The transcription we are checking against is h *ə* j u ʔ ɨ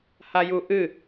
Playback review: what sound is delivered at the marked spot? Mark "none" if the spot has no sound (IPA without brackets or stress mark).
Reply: a